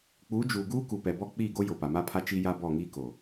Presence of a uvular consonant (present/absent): absent